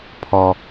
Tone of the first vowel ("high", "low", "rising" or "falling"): low